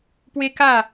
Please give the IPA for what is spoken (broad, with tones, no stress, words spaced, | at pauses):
pwe˦ka˥˧